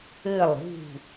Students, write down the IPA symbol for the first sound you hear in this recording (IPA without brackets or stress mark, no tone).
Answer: ɘ